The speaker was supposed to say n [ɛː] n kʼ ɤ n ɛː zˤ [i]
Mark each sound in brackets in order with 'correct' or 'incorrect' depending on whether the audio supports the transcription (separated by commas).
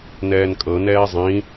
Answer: correct, incorrect